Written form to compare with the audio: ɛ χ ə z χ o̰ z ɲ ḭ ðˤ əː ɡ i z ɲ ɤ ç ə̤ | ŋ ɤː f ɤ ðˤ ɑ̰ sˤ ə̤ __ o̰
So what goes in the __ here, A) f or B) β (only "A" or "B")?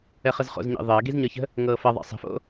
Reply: A